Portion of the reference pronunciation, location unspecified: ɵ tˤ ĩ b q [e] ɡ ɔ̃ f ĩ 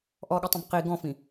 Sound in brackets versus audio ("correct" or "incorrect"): incorrect